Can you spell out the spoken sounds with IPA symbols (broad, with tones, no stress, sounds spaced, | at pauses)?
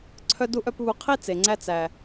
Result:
ǀʰ œ˧ d u˧ ʔ œ˧ p β u˨˦ qʰ i˦ t͡s e˨ ŋ͡ǀ æ˧ t͡s æ˨